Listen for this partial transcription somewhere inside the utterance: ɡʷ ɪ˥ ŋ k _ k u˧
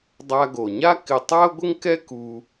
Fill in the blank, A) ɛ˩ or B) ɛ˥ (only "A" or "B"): B